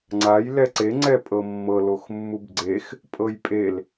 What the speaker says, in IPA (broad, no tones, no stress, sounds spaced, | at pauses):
ŋ͡ǀ a j l ɛ ǀ e ŋ͡ǀ ɛ pʼ ɤ mː ɤ l o x mː u b ɡ͡ǀ e x | pʼ ɤ j pʼ e l